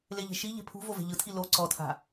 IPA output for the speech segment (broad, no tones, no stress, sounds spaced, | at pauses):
l e ʎ e̤ ʃ i ʎ e̤ pʰ ṳ v o v e̤ ʎ ɯ tʰ i l o ǀ ɔ tʰ a̤